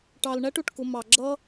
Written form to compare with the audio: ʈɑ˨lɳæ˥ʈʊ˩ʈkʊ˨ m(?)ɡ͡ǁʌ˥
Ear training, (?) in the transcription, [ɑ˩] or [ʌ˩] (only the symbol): ɑ˩